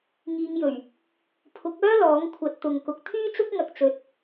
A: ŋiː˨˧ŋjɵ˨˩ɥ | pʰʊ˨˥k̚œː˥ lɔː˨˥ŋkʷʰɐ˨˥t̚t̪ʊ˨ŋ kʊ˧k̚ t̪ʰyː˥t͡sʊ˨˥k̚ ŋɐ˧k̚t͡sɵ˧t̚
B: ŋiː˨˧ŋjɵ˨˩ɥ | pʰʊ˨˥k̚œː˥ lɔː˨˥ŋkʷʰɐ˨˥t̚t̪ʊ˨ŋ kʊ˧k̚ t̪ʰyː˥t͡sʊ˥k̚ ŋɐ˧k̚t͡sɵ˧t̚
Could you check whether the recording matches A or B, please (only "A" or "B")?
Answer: B